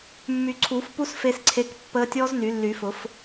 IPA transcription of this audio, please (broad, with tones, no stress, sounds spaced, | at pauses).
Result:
mː y˨˩˦ ǀʰ uː˨˩˦ f p u˦˥ s f e˦˥ s ǀʰ e˦˥ k pː əː˦˥ tʲ ɔː˦˥ z n y˨˩˦ lː y˨˩˦ f ʊ˨˩˦ f